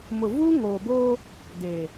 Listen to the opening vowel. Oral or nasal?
oral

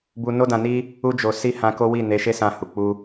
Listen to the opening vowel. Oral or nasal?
oral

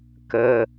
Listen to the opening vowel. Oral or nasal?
oral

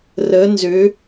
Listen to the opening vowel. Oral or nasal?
oral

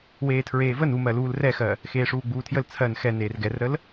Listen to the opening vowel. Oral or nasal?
oral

